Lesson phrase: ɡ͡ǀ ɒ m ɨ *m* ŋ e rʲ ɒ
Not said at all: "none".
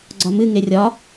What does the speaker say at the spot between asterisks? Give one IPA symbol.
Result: none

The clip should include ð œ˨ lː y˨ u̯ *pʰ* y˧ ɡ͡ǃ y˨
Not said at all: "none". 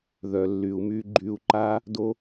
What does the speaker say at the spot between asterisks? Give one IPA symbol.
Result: m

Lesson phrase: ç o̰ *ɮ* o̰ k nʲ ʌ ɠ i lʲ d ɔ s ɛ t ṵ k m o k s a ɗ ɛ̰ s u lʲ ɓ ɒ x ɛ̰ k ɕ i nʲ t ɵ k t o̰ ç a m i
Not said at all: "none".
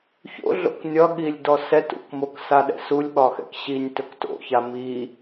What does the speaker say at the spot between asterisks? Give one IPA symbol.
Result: ɮ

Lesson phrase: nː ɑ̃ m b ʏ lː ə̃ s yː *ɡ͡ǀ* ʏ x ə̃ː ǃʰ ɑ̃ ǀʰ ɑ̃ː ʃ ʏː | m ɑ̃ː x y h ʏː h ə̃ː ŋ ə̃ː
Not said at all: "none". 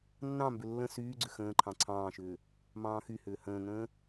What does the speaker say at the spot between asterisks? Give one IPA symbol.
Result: ɡ͡ǀ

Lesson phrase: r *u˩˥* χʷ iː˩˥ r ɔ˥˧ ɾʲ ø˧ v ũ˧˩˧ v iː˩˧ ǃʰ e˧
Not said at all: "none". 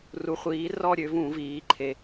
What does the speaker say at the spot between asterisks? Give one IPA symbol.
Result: u˩˥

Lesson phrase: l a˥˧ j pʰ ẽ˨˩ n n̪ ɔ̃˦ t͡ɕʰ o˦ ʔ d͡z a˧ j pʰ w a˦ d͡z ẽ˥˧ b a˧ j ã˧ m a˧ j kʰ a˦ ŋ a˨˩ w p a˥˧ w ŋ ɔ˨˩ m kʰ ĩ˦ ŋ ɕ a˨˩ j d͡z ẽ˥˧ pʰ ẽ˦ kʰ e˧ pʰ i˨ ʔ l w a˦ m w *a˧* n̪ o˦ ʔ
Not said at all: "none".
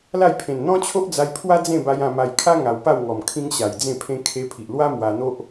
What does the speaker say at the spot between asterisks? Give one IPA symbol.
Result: a˧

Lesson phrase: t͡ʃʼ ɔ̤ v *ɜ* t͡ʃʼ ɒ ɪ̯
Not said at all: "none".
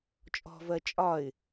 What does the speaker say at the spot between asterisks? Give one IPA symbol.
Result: ɜ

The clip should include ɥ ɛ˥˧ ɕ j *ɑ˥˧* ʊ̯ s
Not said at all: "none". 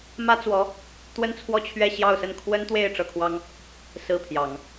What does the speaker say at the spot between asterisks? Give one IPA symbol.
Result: ɑ˥˧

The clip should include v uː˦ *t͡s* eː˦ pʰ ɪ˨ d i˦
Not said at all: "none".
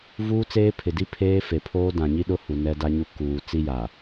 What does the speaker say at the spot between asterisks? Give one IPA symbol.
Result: t͡s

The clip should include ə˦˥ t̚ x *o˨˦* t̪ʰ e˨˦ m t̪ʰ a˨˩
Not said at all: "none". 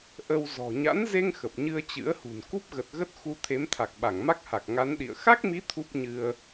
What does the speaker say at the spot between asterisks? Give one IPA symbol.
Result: u˨˦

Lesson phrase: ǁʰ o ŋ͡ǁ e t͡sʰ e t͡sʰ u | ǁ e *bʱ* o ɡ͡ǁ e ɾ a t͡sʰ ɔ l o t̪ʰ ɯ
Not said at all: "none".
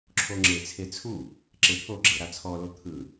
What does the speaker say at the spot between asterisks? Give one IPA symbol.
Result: pʰ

